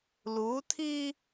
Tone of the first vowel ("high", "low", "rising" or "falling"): rising